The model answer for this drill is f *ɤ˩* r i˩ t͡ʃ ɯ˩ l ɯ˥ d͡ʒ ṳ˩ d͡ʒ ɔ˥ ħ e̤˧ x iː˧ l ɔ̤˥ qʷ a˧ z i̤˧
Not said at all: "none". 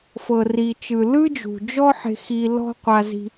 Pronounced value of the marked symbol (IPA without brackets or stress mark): ɤ˩